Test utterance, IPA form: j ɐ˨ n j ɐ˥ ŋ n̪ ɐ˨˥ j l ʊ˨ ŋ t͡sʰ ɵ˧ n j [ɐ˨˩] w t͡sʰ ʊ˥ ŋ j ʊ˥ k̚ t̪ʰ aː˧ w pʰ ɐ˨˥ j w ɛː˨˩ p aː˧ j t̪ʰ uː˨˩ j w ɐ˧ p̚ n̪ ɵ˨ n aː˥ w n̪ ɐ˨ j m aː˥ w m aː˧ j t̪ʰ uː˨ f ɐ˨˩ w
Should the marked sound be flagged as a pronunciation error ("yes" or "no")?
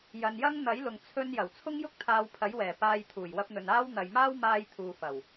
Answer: no